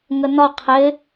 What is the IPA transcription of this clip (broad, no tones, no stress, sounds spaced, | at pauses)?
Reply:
ŋ ə n ɒ qʰ ɪ